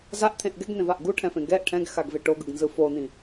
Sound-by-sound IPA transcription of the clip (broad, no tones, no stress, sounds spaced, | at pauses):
z a ʔ t̪ʰ ẽ ʔ ɡ ɛ ɡ n̪ ẽ v a ʔ ɡ u ʈʰ ɛ̃ f ẽ ɡ ɛ ʔ ʈʰ ɛ̃ ɡ x a ɡ v e ʈ o ɡ ɯ ɡ n z ɯ f o n̪ ĩ